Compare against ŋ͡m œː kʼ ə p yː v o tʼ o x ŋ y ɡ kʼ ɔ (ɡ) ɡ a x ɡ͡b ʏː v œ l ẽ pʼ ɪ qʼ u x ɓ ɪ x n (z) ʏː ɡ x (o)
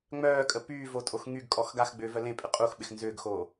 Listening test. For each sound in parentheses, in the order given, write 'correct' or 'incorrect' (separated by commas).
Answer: incorrect, correct, incorrect